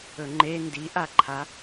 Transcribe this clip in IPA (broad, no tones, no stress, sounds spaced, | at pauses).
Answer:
ɵ ŋ͡ǃ e n d i ʔ a ǃʰ a